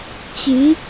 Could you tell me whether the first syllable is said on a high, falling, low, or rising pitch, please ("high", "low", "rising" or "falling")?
rising